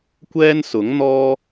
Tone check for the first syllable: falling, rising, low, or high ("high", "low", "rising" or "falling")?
high